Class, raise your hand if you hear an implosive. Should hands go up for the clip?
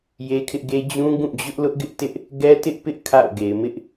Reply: no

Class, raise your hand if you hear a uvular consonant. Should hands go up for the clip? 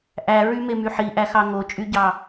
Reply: no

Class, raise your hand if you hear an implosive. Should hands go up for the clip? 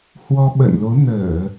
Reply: yes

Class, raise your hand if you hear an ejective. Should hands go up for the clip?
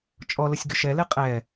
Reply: yes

